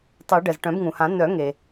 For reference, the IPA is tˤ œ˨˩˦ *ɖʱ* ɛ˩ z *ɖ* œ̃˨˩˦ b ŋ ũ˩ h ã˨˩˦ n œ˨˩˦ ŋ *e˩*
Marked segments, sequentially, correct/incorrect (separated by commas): incorrect, incorrect, correct